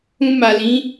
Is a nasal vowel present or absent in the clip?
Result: present